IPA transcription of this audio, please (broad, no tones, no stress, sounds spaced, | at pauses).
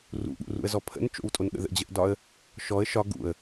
r ṵ ɠ ṵ r ṵ ə̯ z ɔ pʰ ə̰ n t͡ʃ o̰ w tʼ o n ɠ ə̰ ð ə̰ d͡ʑ ə ʔ d ɒ ə̯ | ʃ ɔ ə̯ ʃ ɒ ɡ ṵ ə̯